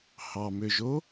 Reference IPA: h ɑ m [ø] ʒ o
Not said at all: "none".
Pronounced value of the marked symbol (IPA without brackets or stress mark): ø